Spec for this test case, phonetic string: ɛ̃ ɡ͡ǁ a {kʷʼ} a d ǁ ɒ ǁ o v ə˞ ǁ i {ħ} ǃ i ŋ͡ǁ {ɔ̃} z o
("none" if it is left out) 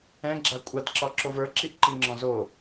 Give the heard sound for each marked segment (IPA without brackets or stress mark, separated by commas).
kʷʼ, ʔ, ɔ̃